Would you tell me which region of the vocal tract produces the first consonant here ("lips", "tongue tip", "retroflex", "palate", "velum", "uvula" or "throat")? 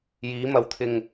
palate